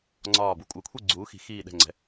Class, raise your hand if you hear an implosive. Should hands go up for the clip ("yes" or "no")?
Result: yes